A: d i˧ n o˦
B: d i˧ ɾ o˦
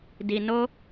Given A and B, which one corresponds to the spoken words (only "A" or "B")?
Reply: A